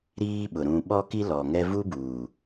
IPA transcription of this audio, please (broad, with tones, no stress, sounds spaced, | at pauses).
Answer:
ɾ iː˦ ɓ ʊ˨ ɾ ũ˨ ɓ ɔ˦ k i˦ l ɔ˨ ŋ ɛ˦ v u˦ b uː˨